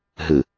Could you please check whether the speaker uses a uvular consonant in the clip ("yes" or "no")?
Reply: no